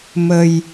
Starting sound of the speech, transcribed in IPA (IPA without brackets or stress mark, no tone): m